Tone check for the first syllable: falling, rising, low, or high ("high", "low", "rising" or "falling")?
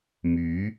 rising